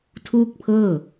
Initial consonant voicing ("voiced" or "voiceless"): voiceless